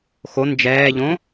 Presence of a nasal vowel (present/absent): present